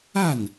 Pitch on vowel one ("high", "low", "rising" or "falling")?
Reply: falling